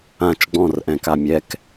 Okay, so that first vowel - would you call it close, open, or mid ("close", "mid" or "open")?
open